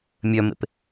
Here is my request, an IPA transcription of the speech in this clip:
mʲœmḛp

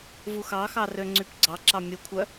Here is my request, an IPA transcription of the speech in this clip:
vuxɑxɑ røŋ͡ǀypɡ͡ǀɑǁɑ mʲukʷʰœ

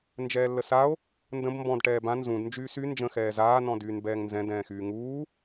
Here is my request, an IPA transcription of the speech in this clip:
nd͡ʒɛːlːəsao̯ | ndə̃b mbɔ̃d ʈɛːbã nzũd nd͡ʒyːsy nd͡ʒə̃ xɛːzaː nɔ̃dyːnbɛːŋnzɛ̃ dɛ̃ːxyːŋuː

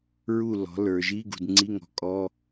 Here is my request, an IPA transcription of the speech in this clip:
ɹu˥˨lɔ̤˨˥ lə˞˨ʒi˧˥˧ ɡṳ˨dŋ͡ǀi˧˥˧ŋɔ̤˨˥ kʼɔ˧˥˧

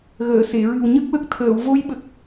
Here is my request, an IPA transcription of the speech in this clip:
ɣəː˨˩˨se˨˩˨ɹɨ˨˩w ɲə˦˥k̚wə˦˥k̚t̪ʰəː˨˩˨w vo˧˥jɓə˨˩k̚

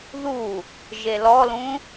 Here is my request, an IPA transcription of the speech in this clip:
ðu | ʒelɔlũ

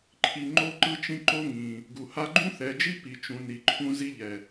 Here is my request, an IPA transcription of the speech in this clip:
ǃʰi˨ ŋ͡ǃo˦ǃɯ˦t͡ʃĩ˦ ǃo˦ŋĩ˨ | ɡu˨ha˦ ɡ͡ǃũ˦θɛ˨d͡ʒi˦ pi˨t͡ʃũ˨ni˨ǃʰũ˦ zi˦ʎɛ˨

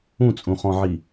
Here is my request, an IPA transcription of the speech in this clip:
ũt͡sʼũχɔ̃ʕi

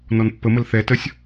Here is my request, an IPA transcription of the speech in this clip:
nɔnpːəməl θɛtəsʲ

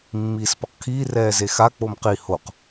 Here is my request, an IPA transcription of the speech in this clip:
mːiːspʌqkʰiː rɛːzexa k͡pomqi hoq

